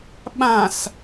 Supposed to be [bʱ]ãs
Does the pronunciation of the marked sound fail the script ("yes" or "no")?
yes